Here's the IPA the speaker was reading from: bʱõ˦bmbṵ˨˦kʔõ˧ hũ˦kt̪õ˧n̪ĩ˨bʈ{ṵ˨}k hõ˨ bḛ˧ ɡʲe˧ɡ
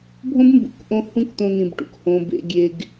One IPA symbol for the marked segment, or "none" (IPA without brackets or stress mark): ṵ˨